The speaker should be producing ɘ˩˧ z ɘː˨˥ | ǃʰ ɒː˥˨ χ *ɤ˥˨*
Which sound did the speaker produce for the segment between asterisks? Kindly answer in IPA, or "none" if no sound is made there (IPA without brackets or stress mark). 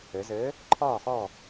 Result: ɔ˥˨